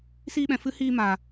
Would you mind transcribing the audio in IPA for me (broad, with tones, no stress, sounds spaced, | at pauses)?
s iː˦ ɓ ɛ̃˧ f ɨ˦ h iː˦ m aː˧